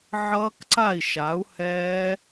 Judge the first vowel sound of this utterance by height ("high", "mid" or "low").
mid